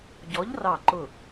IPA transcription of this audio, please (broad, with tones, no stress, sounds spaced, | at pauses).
ɟ ɔ˨˥ ʎ r ɑ˧˩ ǃ ʊ˧˩